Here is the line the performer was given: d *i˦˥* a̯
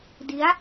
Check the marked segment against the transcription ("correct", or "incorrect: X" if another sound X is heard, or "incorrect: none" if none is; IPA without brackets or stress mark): correct